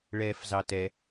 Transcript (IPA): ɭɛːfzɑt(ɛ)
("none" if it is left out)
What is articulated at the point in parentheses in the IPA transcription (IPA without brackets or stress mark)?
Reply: ɛ